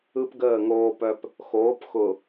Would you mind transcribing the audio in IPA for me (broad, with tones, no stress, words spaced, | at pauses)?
ɯ˦pɡəː˦˨ŋoː˦pœ˦p | xoː˨˦pxʊ˨